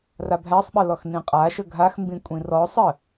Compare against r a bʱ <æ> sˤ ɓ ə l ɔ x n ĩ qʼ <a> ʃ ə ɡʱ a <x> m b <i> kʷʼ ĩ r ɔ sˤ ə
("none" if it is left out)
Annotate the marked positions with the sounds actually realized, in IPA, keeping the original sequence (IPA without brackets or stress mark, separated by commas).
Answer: æ, a, x, ĩ